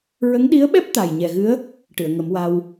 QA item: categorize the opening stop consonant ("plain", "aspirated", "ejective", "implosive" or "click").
implosive